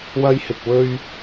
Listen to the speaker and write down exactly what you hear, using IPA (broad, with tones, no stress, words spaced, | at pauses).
wɐ˧jhɪ˨k̚ wɵ˧ɥ